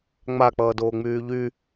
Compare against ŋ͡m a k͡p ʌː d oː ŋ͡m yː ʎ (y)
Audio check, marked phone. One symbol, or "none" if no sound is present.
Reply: y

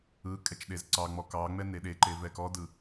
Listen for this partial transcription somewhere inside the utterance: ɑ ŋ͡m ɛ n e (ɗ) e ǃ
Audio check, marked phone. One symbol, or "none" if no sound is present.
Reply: ɗ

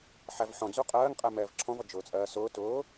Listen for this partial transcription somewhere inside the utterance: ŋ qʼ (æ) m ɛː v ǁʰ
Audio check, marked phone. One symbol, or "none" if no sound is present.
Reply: ɛ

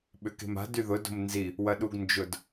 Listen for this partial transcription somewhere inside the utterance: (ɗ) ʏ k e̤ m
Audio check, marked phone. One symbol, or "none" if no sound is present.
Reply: ɓ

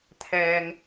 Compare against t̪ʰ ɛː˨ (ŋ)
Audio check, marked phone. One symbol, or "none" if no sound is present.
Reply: ŋ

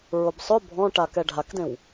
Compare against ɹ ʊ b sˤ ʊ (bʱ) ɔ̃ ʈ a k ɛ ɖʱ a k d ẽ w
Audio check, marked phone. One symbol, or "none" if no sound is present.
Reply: bʱ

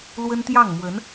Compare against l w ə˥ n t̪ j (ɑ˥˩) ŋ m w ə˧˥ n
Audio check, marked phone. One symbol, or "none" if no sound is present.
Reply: ɑ˥˩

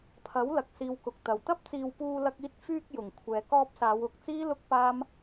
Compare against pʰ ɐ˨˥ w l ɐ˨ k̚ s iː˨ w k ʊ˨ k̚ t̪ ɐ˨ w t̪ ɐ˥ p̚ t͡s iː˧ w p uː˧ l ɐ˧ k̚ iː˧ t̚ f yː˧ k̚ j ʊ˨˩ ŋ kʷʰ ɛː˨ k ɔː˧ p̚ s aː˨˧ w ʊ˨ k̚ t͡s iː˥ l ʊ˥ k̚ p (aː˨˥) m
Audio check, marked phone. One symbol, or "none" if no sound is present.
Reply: aː˥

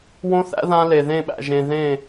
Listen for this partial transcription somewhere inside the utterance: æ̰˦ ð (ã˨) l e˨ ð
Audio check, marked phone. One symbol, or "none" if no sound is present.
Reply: ã˦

